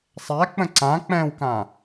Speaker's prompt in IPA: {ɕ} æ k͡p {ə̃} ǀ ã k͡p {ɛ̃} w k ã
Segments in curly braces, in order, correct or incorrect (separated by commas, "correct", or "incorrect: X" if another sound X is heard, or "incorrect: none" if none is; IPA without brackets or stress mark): incorrect: sˤ, correct, correct